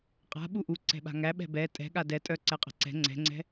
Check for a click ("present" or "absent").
present